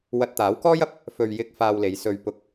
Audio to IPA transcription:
w ɐ˧ t̚ t̪ aː˨˥ w k ɔː˥ j ɐ˧ p̚ | f ɵ˧ ɥ j ɪ˥ k̚ f aː˧ w l e˨˧ j s ɵ˧ ɥ p ʊ˧ k̚

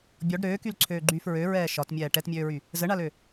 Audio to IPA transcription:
bʲ ɔ ɖ ɾ øː k y l ǀʰ øː ɡ͡ǃ yː f ɹ ø ɹ ɛː ʃ ɒ t mʲ ɛː ʈ ɛ t mʲ øː ɹ y | z ə ɳ a l ø

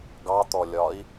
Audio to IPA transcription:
ɡ ɑ t̪ ɔ lʲ ɒ i̯

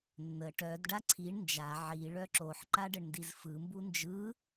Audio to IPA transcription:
nː ə ʈ œ d ɖ a ǀʰ i ɳ n d͡ʒ a ʕ i ɭ œ ǁ o ħ ǃ a ɖ ə ɳ n d i z f ɯ m b u n d͡ʒ ɯ

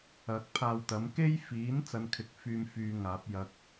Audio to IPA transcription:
ɐ˨˥ k̚ pʰ aː˧ w t̪ ɐ˨˥ m k e˥ j f iː˨˥ n t͡s ɐ˧ n kʰ ɪ˨˥ k̚ f yː˧ m f yː˨˧ ŋ aː˨˥ p̚ j ɐ˧ k̚

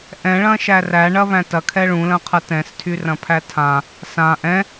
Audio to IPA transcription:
ʔ ɛ̃ ɭ ɐ̃ ʃ æ r æ ɳ ɐ β æ̃ t ɐ kʰ ɛ ɭ ũ l ɐ̃ qʰ ɐ t ɛ̃ s tʰ y r ɐ̃ pʰ æ tʰ ã | s ã ʔ ɛ̃

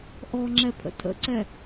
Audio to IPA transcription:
ʔ ɔ ŋ͡ǁ ɛ pʰ ə̰ tʰ ə̰ ǀ ɛ

